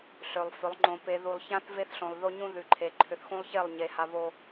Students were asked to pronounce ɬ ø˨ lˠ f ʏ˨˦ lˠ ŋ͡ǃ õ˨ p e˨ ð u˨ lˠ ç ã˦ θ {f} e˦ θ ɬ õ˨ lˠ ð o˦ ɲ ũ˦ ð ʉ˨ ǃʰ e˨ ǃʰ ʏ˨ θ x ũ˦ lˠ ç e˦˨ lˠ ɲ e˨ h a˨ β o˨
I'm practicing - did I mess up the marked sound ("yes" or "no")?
yes